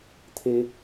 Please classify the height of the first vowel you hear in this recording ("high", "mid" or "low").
mid